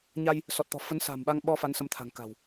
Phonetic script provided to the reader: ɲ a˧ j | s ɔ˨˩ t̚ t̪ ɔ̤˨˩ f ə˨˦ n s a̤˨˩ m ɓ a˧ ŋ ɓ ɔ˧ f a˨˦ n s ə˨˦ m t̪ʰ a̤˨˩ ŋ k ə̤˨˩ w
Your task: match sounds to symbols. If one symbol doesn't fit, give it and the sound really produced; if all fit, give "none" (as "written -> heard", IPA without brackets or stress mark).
ə̤˨˩ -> a̤˨˩